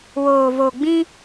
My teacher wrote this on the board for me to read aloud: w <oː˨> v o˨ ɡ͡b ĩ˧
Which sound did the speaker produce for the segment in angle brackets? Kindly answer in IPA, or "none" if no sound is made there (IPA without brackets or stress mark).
oː˨